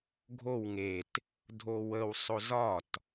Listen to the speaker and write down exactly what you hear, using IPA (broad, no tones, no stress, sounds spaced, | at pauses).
ɡʱ o w ŋ e t | dʱ o w ə w sˤ o z ɒ t